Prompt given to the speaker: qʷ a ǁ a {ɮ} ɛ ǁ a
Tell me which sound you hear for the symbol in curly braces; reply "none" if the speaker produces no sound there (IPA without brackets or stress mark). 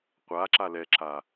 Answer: l